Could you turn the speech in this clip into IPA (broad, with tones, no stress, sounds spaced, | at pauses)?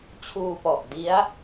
t͡ɕʰ uː˧ p ɔ˨˩ ʔ d i˦˥ a̯